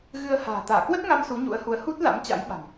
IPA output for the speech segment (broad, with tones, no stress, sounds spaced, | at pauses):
ɣ ɨ˧ ə̯ h a̤ː˨˩ t̪ aː˧˩ k w ə˦˥ t̚ ŋ a˧ m s u˨˦ ɲ ṵ˧˥ ə̯ h u˨˦ ə̯ h u˦˥ t̚ l a̰˧˥ m t͡ɕ a̰˧˥ j ɓ a̤˨˩ m